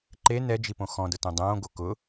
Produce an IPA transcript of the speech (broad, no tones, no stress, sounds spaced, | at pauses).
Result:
ǃ e n ɛ d͡ʒ i p õ x ɔ̃ d ʊ t õ dˤ õː ɡ o k ʊ